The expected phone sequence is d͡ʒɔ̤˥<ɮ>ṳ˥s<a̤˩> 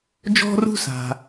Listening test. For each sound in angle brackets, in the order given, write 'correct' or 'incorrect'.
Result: incorrect, correct

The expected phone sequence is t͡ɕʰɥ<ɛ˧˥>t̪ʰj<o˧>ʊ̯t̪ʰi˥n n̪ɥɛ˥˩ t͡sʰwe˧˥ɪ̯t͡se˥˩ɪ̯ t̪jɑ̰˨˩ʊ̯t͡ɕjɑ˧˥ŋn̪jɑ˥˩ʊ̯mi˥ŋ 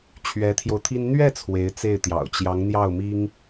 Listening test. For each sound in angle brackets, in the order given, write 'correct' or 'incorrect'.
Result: correct, correct

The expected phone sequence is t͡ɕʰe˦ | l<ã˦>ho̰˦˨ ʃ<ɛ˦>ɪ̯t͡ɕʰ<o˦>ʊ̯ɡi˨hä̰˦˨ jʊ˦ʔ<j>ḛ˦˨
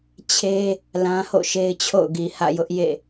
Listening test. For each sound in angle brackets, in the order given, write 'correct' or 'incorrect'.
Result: correct, incorrect, incorrect, correct

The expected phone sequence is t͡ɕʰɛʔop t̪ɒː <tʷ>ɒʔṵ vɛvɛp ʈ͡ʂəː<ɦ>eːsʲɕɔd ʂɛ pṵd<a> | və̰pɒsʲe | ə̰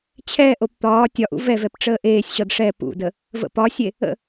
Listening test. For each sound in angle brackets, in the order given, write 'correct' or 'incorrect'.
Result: incorrect, incorrect, incorrect

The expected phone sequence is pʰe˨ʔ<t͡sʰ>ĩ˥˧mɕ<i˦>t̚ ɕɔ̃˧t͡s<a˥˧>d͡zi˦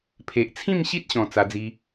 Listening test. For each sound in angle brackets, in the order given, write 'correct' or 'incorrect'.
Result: correct, correct, incorrect

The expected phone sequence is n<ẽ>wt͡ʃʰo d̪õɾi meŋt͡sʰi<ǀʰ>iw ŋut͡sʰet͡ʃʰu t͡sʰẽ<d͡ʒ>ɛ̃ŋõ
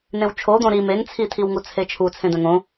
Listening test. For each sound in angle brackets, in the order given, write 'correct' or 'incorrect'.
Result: correct, incorrect, incorrect

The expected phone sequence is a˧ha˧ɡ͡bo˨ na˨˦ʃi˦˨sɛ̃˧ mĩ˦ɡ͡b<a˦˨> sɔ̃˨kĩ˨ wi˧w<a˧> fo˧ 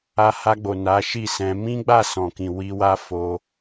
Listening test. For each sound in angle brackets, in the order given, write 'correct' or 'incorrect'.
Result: correct, incorrect

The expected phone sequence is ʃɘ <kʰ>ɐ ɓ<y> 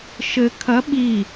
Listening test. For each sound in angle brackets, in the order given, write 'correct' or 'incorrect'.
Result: correct, incorrect

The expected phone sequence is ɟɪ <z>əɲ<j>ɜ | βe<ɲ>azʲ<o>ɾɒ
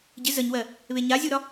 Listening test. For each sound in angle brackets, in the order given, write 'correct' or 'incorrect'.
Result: correct, incorrect, correct, incorrect

